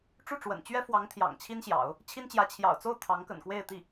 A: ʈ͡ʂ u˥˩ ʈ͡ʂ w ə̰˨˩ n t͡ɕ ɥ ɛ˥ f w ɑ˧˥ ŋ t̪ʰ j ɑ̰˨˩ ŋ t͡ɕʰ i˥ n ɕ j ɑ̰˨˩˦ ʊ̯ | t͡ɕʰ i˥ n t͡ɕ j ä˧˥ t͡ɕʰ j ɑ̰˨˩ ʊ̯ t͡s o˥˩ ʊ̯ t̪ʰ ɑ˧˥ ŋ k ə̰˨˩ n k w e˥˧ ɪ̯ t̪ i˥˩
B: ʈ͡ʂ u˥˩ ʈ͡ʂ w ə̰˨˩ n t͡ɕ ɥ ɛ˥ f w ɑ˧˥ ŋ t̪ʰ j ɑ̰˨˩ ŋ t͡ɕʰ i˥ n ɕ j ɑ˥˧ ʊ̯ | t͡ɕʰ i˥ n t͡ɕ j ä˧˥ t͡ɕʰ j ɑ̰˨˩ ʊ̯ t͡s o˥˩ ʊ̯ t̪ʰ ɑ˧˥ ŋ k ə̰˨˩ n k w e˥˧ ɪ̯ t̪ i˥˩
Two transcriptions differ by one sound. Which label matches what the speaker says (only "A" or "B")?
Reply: A